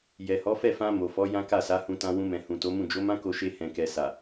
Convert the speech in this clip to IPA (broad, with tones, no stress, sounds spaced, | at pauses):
j ɛ˨ h ɔ˨˦ f ɛ˦˨ f ã˧ m o˨ f ɔ˨˦ j ã˦ k a˦˨ s a˨˦ h ũ˧ t ã˧ w ũ˧ m ɛ̃˨ h ũ˨ t o˨˦ m ũ˦˨ d͡ʒ o˨˦ m ã˦ k o˧ ʃ e˧ h ɛ̃˨ k ɛ˨ s a˨